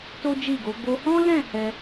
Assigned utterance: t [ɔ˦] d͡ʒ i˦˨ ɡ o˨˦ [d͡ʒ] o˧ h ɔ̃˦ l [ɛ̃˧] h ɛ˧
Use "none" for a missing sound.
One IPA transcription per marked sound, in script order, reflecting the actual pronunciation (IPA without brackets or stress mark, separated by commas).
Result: o˦, ɡ, ɛ̃˦˨